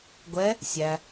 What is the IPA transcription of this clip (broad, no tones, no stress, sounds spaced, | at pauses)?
ɡʷ ɛ | sʲ æ